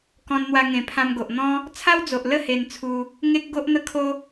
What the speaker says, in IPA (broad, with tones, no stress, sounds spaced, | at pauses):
k ɔ̃˧ n n̪ w a˧ ŋ ẽ˨˩ pʰ ã˧ m ɡ o˨ ʔ n̪ ɔ̃˦ | t͡sʰ a˦ w d͡z o˨ ʔ l ə˥˧ h e˧ n t͡sʰ u˧ | ŋ e˦ k̚ ɡ o˦ ʔ n̪ ə˦ kʰ o˦